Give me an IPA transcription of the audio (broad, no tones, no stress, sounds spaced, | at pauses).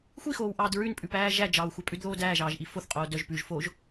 xʷ i x oː w ʔ ɑː d ɹ ʉ n pʼ ʉ p æː ʒ æ d͡ʒ ɑː w xʷ ɑ pʼ ʉ d ð oː d æː ʒ ɑː ʒ ʔ i f o θ qʼ oː d œ ʒ p ʉ ʒ f o ʒ